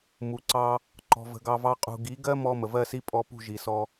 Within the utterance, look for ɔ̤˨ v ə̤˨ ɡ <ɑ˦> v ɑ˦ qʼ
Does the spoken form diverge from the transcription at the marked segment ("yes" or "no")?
yes